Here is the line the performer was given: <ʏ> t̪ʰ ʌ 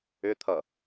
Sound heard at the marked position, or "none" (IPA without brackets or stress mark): ʏ